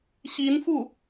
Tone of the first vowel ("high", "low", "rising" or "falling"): rising